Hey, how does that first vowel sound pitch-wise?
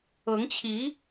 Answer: rising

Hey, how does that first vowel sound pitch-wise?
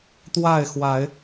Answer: falling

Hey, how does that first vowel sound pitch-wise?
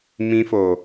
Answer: high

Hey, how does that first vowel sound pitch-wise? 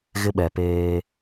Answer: high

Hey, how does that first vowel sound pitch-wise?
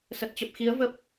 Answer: low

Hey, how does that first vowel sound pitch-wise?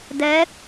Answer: rising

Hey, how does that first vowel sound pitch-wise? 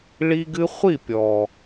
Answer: high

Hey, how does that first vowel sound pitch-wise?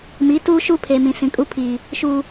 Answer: rising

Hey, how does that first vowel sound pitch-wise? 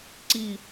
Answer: falling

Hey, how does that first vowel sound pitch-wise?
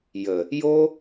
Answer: low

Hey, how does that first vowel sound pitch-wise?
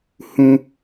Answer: high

